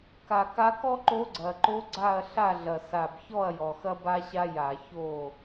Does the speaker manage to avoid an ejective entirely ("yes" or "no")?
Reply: yes